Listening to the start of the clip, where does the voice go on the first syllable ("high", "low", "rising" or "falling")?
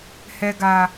low